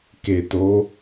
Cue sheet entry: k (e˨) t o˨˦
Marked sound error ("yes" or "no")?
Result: no